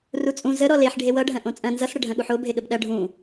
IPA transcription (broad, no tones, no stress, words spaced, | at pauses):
rut͡sʼũ zə ɾɔleħ ɖʱewʌɖʱɐ̃ ʔõt͡sʼɐ̃ nzʌsɽə ɖʱɐ̃ɠuħo bʱeɠəbɗɐ ɖʱũ